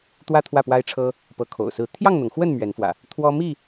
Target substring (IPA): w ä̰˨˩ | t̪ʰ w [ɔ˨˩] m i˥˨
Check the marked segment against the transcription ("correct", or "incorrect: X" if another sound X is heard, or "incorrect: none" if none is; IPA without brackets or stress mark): incorrect: ɔ˦